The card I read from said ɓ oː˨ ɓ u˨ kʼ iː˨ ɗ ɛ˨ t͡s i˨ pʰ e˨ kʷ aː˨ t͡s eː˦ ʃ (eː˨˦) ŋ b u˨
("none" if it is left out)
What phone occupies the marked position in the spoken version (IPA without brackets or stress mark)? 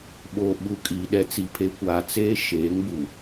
eː˨˦